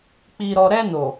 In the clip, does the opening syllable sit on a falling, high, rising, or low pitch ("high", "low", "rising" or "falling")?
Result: low